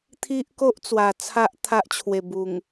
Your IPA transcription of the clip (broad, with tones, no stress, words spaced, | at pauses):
t̪ʰi˦ʔko˦ʔt͡swa˨˩ t͡sʰa˦ʔ t̪ʰa˦ʔt͡ɕʰwe˨˩ bu˨˩ŋ